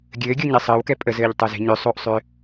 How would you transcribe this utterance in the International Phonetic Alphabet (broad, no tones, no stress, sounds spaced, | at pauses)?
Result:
ɡʲ ɘː ɡʲ o ɲ ɛ sˤ əː w k ɛ pʼ ə z ɘː ʎ tˤ o z e̤ ɲ ʏ sˤ o ʔ sˤ ʏː